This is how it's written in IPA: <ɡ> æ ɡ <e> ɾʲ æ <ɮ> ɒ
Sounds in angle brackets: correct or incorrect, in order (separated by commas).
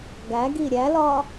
correct, incorrect, incorrect